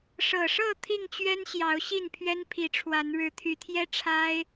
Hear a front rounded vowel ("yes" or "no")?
yes